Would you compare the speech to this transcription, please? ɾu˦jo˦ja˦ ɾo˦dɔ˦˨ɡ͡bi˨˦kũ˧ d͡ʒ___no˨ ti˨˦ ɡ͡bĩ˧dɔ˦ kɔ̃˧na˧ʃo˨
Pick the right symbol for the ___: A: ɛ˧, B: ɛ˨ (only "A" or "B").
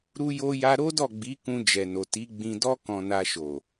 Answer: B